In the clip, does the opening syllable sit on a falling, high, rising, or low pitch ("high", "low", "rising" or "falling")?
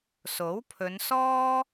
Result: rising